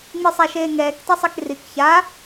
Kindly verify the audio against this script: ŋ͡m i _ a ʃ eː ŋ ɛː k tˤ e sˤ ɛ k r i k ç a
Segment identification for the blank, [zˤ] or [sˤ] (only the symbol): sˤ